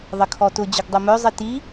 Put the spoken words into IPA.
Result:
ðˤ ə kʰ ɔ t ʊ d͡ʑ ʊ ɡ dˤ o m œ zˤ i t i

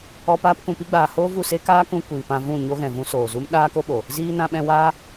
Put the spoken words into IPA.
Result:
ɔ˧ p aː˧ p k ũ˨ p i˧ ɡ͡b aː˨ h oː˦ v u˦˨ s e˦ k aː˦ k ũ˧ kʷ iː˨ p ã˧ v ũ˦˨ ɲ o˧ ɣ ɛ̃˨ v ũ˧ s oː˨ z u˦ m ɗ aː˦ k o˦ ɓ o˨ | z iː˦ n ã˧ ɓ ɛ̃˧ w aː˦

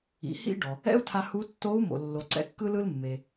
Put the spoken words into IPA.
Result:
ḭ˩˧ h ḭ˥ ɖ ɔ˩ | ɛ̰˥ u̯ tʰ a˧ h u˧˥ tː o˧˥ u̯ m o̰˩ lː o˩ ǀ ɛ̰˧ kː ɯ˧ l ɯ˧ l mː e˩

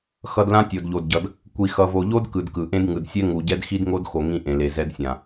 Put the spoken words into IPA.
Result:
x ʌ˨ d l ã˦ tʲ o˨ d ʎ o˨ d ɟ ʌ˨ d | kʷ i˨ x ʌ˨ v o˨ ʎ o˦ d k ɯ˨ d k ɯ˨ ʔ ẽ˦ d ŋ ɯ˨ d sʲ ɛ˦ ŋ u˨ ɟ ɛ˦ d x i˦ d ŋ o˦ d x o˨ ŋ ĩ˦ ʔ ẽ˨ l e˨ z ɛ˦ d sʲ ã˨

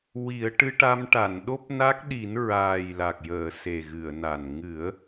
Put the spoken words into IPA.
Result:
w i˨˩˦ ə̯ ʈ ɨ˧ ʈ a˧ m ʈ a˨˩˨ n ɗ o˦˥ p̚ n a˦˥ k̚ ɗ i˨˩˦ n ɹ aː˨˩ j l a˨˩ k̚ j əː˨˩˨ s e˨˩ ɣ ɨ˨˩˨ ə̯ n a˨˩ n ŋ ɨ˨˩˦ ə̯

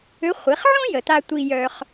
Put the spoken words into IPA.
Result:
ø˧˥ χʷ i˩˧ χ ʕ õ˥ j ə˩ t̪ a˧ tʷ i˧ j œ˧ χ

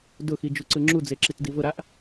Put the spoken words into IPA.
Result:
d ʊ x i d͡ʒ u ǀ ɯ ŋ͡ǁ u d͡z e ǁ i t d i v ʊ ɾ a ʔ

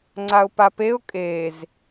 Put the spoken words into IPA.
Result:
ŋ͡ǀ a ʊ̯ p a p e ʊ̯ kʼ e z

